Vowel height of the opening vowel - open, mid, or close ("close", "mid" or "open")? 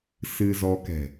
close